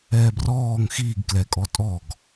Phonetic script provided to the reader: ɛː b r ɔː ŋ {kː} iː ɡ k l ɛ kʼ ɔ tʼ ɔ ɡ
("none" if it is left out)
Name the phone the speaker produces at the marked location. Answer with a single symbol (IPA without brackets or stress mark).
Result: x